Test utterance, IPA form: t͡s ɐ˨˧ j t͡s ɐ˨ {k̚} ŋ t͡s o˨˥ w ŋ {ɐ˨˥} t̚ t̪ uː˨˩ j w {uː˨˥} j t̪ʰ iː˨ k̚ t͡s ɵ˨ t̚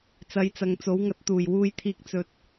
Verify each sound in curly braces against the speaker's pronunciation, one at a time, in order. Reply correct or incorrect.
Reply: incorrect: none, correct, incorrect: uː˧

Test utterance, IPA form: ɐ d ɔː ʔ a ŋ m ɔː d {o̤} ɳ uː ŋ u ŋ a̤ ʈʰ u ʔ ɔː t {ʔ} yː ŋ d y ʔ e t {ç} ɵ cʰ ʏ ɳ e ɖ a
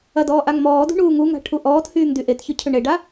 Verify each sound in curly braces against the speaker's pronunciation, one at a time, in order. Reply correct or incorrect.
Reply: incorrect: ṳ, incorrect: h, correct

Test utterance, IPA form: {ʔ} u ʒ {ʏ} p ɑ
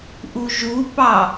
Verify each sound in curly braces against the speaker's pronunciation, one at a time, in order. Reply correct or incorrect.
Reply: correct, incorrect: u

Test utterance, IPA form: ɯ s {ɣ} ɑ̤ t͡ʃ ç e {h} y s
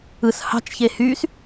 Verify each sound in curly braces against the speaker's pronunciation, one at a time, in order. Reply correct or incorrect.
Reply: incorrect: h, correct

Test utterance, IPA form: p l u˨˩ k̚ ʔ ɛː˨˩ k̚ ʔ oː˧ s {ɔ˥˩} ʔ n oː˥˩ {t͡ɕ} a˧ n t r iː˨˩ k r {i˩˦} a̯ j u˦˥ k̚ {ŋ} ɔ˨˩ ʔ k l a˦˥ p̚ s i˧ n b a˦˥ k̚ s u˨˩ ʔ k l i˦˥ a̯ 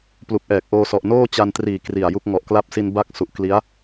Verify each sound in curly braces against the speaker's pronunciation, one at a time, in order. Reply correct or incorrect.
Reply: incorrect: ɔ˨˩, correct, incorrect: i˨˩, correct

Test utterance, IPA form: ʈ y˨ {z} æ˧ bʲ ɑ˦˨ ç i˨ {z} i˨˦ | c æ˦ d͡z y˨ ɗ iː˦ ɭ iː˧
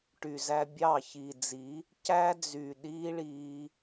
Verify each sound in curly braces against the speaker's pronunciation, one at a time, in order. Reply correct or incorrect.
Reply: correct, incorrect: d͡z

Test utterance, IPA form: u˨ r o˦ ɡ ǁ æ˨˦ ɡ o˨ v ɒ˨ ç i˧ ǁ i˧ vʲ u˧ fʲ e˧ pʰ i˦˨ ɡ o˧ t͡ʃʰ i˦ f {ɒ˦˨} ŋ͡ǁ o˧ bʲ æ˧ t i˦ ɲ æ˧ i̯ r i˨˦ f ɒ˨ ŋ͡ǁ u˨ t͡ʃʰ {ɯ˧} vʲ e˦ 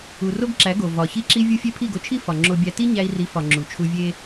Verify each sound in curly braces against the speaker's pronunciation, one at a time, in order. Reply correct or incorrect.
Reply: incorrect: ɒ˨, incorrect: u˧

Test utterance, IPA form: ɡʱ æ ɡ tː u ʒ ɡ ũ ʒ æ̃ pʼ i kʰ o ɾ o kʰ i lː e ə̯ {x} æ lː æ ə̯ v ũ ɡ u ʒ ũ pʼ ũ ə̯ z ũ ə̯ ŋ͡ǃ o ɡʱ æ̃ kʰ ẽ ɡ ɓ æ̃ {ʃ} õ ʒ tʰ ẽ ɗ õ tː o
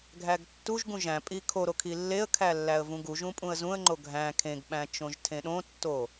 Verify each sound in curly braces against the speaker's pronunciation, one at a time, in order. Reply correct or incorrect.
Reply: incorrect: kʰ, incorrect: t͡ʃ

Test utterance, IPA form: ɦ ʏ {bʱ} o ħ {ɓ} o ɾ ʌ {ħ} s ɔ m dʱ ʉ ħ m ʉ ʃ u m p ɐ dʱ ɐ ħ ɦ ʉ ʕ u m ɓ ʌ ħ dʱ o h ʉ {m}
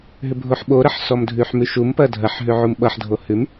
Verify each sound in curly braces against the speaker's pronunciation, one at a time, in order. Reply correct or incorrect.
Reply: correct, correct, correct, correct

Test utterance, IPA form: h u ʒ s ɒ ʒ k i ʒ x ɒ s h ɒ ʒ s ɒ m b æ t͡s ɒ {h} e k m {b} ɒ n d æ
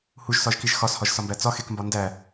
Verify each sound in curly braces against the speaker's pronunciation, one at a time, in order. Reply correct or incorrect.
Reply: incorrect: x, correct

